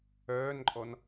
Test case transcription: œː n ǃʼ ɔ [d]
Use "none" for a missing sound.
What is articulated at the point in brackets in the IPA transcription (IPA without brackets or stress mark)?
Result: n